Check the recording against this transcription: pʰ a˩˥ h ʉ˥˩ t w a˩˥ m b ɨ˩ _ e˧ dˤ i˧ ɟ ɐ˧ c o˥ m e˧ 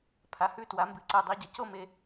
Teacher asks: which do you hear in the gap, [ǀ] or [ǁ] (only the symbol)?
ǀ